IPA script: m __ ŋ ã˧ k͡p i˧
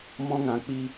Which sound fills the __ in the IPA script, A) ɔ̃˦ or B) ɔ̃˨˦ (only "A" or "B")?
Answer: A